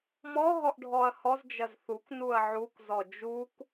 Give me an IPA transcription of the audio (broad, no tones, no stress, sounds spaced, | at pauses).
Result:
m ɔ ɦ ɔ ʔ ɖʱ ɔ ɐ̯ h ɔ z d͡ʒ ɐ z θ u k n u ɐ̯ ʕ u k z ɔ d͡ʒ u k